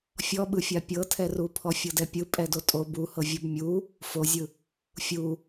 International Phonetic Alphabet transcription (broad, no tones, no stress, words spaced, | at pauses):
fʲɔɓɯfʲa pʲɤtʰɛru pʰɔfʲɤdɛpʲɯ pʼɛdotʼo buhɤ vʲobmʲu | fozʲɯ | fʲu